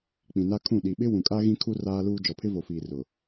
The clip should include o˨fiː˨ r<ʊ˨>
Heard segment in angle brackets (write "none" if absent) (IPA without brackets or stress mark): ʊ˨